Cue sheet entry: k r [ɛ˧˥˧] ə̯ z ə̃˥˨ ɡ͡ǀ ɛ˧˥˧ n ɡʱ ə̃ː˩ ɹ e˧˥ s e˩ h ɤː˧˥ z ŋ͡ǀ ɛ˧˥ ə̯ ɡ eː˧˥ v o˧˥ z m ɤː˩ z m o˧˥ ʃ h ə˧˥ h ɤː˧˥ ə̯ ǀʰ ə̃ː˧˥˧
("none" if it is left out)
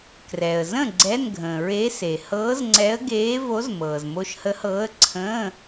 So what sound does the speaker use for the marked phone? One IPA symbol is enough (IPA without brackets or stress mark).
ɛ˩